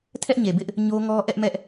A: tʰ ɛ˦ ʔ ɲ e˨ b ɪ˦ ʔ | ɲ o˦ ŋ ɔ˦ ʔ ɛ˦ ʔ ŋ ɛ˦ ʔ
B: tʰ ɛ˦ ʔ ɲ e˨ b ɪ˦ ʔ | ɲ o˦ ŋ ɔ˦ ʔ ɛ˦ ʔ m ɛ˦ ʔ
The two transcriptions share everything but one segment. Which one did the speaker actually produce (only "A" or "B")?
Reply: B